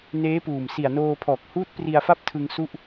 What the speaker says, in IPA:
n eː˦˥ p uː˨˩ m s i˨˩ a̯ n oː˧ pʰ ɔː˨˩ k̚ h uː˦˥ t̚ p r i˧ a̯ f a˦˥ p̚ tʰ ɯ˧ ŋ s u˥˩ ʔ

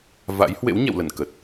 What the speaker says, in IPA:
v a̰˧˥ j h w ḛ˧˥ w ɲ ɛ̰˧˨ w l ə˧˩ n k ə˨˩ t̚

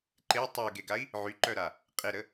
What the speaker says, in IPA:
ǃ e tˤ u ɡ e ɡ a i̯ | ʕ y ǃ œ ɾ a | qʼ e ɾ ə

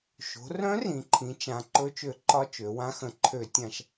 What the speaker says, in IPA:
ʃ o̤˩˧ r œ̃˧˥ r ĩ˩˧ ǃʰ ĩ˩˧ t͡ʃ ã˩˧ ǃ ɵ˧˥ t͡ʃ ø˧˩˧ ǃ ɒ˧˥ t͡ʃ ø˩˧ w ã˧˥ x ə̃˧˩˧ ǃʰ ø˧˩˧ tʲ ã˧˩˧ ʃ

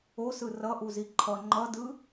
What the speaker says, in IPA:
o s ɯ r ʌ ʔ u z i ǃʰ ʌ ŋ͡ǃ ʌ d ɯ

